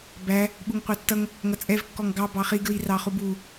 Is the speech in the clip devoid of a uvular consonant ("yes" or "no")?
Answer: no